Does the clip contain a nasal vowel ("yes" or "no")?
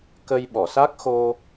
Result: no